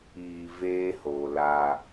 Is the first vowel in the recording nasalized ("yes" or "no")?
no